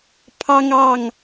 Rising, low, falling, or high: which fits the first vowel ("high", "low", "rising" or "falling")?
high